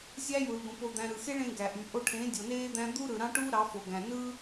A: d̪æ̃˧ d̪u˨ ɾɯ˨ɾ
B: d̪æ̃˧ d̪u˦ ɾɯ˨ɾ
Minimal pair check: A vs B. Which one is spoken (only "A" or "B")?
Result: B